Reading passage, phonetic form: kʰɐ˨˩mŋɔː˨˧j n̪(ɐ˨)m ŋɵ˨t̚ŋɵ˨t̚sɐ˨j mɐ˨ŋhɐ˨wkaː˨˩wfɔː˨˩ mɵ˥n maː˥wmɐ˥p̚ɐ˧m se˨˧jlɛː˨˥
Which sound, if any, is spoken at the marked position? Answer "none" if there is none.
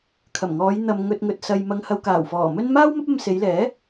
ɐ˨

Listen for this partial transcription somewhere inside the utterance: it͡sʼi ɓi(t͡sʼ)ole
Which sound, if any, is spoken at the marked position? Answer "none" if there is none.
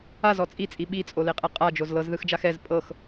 t͡sʼ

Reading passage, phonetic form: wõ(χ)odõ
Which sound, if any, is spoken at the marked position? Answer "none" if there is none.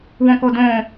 k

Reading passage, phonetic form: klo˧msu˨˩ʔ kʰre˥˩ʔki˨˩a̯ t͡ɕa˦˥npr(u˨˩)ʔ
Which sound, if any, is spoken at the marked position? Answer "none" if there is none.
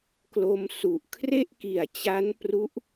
u˦˥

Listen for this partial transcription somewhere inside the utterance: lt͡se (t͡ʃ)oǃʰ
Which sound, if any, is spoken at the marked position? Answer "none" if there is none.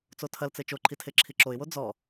t͡ʃ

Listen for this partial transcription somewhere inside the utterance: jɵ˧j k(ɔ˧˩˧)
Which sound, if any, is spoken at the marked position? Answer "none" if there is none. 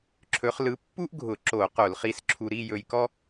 ɔ˥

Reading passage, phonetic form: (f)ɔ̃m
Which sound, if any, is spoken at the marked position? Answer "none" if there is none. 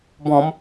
b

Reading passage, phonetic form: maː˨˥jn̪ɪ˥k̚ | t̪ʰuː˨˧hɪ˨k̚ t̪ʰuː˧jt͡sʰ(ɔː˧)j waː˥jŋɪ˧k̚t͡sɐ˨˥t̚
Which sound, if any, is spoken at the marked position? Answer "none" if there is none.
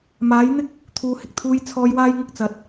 ɔː˧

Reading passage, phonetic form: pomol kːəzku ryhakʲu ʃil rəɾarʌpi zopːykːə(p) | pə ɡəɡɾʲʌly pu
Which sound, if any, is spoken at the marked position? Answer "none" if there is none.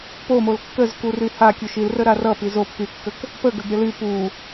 k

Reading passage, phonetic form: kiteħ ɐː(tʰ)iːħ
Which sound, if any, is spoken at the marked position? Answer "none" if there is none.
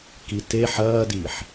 d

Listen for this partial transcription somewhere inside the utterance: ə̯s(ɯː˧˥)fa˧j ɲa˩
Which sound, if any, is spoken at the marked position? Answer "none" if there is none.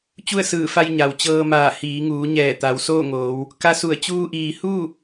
ɯː˧˩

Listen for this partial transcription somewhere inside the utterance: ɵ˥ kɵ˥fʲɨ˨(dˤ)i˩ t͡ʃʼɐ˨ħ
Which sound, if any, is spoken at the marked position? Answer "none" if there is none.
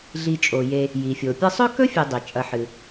dˤ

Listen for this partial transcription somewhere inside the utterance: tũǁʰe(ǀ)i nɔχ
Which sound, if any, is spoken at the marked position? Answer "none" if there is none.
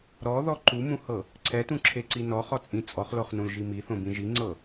ǀ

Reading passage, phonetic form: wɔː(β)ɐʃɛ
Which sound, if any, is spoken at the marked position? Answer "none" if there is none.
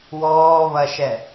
β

